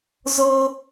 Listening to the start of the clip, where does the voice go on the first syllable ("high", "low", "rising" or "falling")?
high